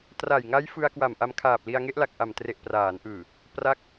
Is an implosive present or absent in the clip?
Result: absent